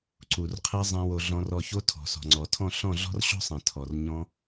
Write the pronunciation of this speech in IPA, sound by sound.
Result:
ǀ u˨ r qʰ ɛ˧ zˤ ɛ̃˦ w o˧ ɮ ɔ̃˧ r ɔ˧ ç o˦ tʰ ɔ̤˨ s ɔ̤˨ ŋ͡ǀ ɔ˨ tʰ ɔ̃˦˨ ɬ ɔ̃˦˨ ɮ ɔ̤˦ r ɕ ɔ̤˦ sˤ ɛ̃˨ tʰ ɔ˨ r ɲ ɔ̃˦

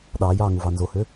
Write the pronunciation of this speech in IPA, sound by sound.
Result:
ɗ ɑː j ɑː ŋ u v ɑ n z o h ø

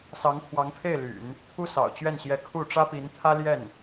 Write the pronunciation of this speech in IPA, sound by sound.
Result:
s ɑ˧˥ ŋ t̪ʰ w ɑ˧˥ ŋ pʰ e˥˩ ɪ̯ l y̰˨˩˦ n | t̪ʰ u˥ s ɑ̰˨˩ ʊ̯ t͡ɕ ɥ ɛ˥˩ n ɕ j ɛ˧˥ kʰ u˥˩ ʈ͡ʂ ä˥ p i˧˥ n t̪ʰ ä˥ l j ɛ˥˩ n

